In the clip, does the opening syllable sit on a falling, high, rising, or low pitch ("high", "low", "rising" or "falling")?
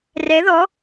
rising